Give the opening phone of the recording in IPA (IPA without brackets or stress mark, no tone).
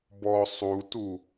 b